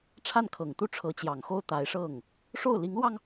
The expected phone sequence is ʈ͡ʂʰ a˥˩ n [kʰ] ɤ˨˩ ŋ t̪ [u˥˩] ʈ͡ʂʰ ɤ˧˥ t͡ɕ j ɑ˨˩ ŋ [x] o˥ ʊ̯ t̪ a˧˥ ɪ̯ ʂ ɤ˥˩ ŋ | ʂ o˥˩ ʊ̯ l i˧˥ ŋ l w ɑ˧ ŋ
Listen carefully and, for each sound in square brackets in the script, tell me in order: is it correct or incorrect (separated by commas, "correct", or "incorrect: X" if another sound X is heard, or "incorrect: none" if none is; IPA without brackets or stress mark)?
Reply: correct, correct, correct